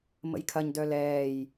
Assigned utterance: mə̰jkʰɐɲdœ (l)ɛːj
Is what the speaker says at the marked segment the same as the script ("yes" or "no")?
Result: yes